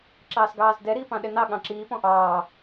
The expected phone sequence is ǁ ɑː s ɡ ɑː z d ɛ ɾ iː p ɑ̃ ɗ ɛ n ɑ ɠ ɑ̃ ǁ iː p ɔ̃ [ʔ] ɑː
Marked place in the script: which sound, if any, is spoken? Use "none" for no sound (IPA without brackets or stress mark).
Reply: ʔ